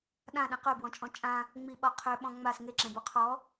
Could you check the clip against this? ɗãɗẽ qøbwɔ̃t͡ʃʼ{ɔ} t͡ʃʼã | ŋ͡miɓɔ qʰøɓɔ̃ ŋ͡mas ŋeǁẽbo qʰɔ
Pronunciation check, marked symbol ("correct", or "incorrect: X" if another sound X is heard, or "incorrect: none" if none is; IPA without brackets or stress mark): incorrect: ɔ̃